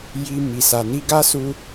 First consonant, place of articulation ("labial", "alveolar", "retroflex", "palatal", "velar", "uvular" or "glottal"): palatal